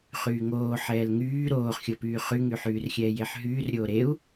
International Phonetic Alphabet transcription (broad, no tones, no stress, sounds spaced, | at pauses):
χ yː ŋ oː ħ ɛː l ŋ yː ɾ oː χ xʲ o p yː χ y ŋ y ħ yː r xʲ ɛː j e ħ ɦ yː r ɾʲ oː ɾ e u̯